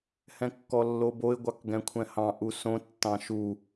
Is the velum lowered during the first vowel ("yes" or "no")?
yes